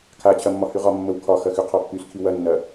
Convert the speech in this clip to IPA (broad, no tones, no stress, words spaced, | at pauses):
kʰat͡ɕʰɐ mːɒhyʁɒmːəw kʰɒxɐ xyqʰɒpːyskʰi wɐnːɐ